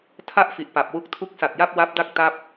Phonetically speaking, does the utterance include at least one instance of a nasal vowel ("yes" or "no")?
no